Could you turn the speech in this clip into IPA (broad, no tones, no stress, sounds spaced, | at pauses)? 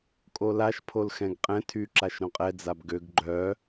kʼ o l a ʃ pʰ o l x ɛ̃ ɡ qʼ ɛ̃ tʰ y ǁ a ʃ ɾ õ qʼ ɛ d͡z a b ɡ ø ɡ ɡ͡ǃ œ